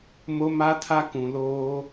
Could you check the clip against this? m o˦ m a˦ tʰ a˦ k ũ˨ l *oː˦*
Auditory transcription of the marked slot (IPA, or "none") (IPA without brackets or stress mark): oː˦